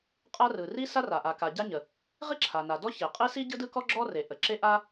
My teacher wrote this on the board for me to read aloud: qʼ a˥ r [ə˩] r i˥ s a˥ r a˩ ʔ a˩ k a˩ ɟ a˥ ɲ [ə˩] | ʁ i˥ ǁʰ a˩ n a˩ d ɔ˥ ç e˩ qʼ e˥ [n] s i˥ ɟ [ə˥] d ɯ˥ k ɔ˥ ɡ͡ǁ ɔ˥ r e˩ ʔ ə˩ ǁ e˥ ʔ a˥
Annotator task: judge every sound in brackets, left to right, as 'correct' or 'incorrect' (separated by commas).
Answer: incorrect, correct, incorrect, incorrect